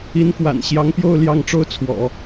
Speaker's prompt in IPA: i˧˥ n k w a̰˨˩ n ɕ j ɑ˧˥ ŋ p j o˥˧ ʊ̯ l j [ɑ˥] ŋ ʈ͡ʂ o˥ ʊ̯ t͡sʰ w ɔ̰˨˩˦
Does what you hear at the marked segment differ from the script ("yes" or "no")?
yes